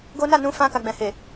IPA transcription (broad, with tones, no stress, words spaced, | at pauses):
ɡo˦ na˦˨nũ˨˦fã˧ka˨ ɡ͡bɛ̃˨he˨